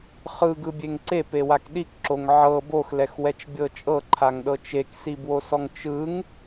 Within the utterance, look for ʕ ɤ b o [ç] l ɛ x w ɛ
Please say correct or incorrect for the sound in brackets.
incorrect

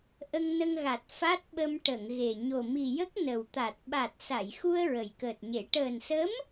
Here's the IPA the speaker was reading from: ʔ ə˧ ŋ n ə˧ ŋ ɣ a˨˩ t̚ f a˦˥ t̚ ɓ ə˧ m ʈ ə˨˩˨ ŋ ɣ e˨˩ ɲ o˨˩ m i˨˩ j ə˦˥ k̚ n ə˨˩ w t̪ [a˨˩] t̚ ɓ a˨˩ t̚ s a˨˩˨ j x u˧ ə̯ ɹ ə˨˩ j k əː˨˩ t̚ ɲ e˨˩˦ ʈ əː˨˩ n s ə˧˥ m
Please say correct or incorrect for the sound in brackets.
correct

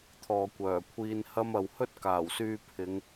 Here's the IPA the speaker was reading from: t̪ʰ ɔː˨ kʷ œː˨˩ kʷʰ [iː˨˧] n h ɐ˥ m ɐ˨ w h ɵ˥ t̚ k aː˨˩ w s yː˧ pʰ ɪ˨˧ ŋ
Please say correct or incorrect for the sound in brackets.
incorrect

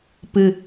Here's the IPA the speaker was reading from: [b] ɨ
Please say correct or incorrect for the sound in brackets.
incorrect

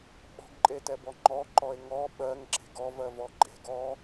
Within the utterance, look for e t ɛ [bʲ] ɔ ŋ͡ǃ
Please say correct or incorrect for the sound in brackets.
incorrect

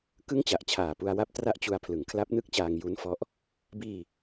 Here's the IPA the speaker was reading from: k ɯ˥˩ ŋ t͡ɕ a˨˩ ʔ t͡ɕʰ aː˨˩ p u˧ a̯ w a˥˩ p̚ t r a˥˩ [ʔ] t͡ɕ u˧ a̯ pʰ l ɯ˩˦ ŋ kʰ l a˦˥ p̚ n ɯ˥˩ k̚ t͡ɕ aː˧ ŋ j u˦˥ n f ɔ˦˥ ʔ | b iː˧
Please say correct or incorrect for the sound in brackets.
correct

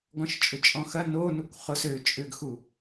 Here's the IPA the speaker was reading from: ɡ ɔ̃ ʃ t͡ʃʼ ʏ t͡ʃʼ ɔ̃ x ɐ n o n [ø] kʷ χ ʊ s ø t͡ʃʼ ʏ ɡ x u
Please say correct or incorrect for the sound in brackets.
incorrect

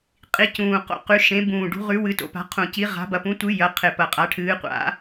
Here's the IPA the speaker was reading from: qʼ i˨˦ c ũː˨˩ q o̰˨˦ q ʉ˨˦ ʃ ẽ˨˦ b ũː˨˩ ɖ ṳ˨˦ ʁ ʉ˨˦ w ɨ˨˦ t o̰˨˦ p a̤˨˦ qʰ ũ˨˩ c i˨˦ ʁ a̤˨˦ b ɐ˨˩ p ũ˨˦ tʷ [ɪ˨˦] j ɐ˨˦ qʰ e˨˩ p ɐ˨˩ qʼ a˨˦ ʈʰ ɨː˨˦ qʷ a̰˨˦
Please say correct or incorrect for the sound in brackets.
incorrect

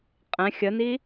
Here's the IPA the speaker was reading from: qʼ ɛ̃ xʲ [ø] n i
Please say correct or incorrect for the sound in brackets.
incorrect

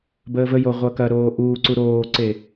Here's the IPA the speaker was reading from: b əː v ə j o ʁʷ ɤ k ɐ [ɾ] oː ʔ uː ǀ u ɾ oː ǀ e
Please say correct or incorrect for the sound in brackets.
correct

